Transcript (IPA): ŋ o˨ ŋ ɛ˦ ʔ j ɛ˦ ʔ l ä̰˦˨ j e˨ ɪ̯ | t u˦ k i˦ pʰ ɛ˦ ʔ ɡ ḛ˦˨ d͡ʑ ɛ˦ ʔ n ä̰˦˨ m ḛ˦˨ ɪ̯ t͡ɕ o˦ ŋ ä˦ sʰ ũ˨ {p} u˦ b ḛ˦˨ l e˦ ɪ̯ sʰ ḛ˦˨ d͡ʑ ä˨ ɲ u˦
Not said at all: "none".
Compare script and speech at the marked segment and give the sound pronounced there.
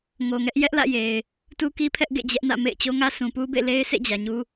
p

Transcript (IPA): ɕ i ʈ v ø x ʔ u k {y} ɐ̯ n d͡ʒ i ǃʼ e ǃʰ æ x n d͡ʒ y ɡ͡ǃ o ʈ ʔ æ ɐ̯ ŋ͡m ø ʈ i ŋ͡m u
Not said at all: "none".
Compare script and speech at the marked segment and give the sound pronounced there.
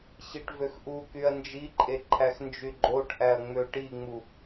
y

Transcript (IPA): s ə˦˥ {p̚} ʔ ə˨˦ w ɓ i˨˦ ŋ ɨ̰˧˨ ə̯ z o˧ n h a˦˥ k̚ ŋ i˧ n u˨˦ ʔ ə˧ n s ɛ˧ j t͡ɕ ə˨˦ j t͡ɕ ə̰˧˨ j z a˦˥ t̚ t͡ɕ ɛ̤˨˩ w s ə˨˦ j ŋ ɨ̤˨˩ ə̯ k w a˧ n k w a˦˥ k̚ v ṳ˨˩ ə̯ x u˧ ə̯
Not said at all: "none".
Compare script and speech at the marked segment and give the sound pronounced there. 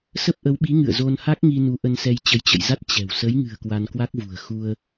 p̚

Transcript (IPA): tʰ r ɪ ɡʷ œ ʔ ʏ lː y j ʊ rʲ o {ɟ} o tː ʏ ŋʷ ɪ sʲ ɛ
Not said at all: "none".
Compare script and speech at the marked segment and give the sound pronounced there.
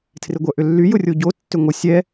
ɟ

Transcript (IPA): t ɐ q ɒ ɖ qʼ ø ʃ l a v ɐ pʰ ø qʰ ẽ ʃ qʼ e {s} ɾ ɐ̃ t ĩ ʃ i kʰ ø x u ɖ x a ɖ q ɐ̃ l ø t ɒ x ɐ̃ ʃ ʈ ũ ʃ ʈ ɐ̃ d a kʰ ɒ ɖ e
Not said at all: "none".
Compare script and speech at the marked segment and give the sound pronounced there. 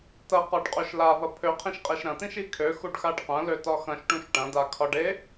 ʃ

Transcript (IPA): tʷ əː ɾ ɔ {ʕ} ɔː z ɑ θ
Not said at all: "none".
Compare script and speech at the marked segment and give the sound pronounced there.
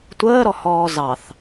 h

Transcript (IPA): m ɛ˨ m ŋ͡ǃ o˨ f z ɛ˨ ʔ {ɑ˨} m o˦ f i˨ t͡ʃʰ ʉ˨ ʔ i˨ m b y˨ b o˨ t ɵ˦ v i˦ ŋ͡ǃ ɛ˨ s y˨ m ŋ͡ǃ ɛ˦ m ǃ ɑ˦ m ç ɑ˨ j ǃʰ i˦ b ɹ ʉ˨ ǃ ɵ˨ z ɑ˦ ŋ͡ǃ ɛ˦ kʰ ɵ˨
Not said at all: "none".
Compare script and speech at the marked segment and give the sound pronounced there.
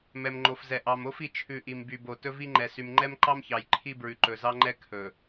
ɑ˨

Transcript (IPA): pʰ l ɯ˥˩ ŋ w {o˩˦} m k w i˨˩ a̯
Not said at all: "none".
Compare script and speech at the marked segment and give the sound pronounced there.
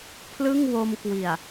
o˧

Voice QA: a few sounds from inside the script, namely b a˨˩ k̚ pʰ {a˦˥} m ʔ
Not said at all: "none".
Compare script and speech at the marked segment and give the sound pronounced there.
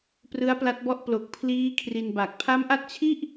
a˦˥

